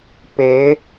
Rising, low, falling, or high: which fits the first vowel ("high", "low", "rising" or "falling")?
rising